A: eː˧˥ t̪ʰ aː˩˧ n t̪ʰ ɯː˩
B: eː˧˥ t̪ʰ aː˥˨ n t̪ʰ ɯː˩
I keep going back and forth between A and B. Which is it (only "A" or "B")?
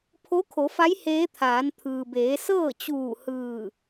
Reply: A